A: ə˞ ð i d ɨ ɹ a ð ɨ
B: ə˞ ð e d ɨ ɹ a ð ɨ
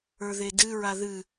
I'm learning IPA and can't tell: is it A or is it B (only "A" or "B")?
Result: B